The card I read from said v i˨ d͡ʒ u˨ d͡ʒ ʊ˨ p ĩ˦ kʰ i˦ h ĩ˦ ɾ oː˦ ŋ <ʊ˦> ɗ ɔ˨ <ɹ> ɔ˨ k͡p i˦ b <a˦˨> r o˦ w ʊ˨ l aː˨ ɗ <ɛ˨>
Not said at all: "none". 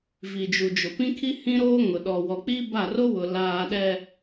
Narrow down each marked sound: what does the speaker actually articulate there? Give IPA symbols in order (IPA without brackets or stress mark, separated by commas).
ʊ˨, w, a˦˨, ɛ˨